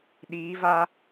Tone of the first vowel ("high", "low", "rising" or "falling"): rising